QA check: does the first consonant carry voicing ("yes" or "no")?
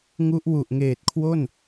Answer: yes